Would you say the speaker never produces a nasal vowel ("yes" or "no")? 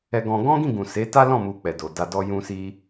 no